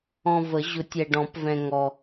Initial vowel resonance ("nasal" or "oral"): nasal